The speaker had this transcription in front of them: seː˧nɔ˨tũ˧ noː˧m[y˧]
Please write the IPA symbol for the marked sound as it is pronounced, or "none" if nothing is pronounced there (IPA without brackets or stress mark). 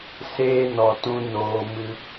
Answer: ɨ˧